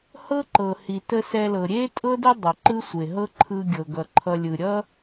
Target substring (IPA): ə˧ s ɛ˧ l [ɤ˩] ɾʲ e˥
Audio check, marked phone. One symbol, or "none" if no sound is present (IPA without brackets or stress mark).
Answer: ɤ˩